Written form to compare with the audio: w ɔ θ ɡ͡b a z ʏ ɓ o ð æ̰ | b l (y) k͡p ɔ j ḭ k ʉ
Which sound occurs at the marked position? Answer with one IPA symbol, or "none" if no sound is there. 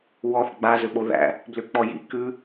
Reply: ʏ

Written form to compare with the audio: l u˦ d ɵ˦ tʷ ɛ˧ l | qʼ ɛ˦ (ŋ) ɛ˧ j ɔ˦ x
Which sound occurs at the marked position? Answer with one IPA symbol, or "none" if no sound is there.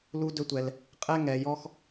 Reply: ŋ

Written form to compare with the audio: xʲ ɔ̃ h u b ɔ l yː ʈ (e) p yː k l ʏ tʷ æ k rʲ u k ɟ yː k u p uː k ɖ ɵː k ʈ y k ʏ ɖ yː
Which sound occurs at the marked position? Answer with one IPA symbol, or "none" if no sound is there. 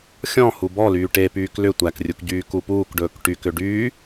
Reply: e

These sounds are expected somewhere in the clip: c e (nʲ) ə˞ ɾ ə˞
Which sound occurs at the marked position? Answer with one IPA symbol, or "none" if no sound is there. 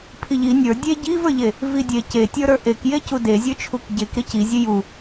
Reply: tʲ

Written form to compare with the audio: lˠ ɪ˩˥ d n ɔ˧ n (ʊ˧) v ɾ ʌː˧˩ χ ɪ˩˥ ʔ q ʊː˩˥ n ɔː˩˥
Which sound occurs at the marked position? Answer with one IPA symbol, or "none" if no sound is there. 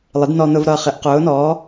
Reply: ʊ˧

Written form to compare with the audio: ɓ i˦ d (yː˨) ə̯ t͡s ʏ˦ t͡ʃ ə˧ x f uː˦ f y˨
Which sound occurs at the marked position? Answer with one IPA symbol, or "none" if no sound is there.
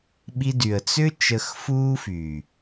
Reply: y˨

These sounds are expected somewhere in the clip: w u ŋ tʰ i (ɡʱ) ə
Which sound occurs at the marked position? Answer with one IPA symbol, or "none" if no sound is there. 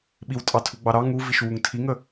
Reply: ŋ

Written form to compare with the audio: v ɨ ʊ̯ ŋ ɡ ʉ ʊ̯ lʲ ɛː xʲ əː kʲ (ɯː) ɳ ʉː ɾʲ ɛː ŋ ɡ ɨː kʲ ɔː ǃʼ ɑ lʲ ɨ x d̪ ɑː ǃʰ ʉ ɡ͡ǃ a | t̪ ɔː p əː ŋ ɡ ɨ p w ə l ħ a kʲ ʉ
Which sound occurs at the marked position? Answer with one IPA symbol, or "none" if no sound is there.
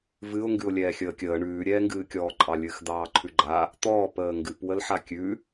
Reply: əː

